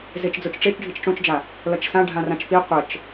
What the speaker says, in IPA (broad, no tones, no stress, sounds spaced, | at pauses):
z e t͡ʃ d͡z o t͡ʃ ʈ͡ʂ e t͡ʃ ɖʱ i t͡ʃ ʈ͡ʂ õ t͡ʃ d͡ʒ a | l ʌ t͡ʃ s ã ɖʱ ã r ã t͡ʃ p i qʷ ə t͡ʃ